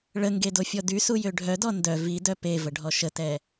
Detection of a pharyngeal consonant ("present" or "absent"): absent